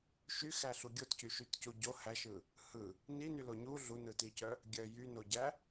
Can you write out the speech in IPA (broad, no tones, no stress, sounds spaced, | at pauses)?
ʃ y x æ ɬ u ɡʲ o t c y ʃ y t c u ɟ o h æ ʃ ɯ | h ɯ | n i n y l o ɲ u ɮ u n ɯ t i c œ | ɡʲ œ j y n o ɟ æ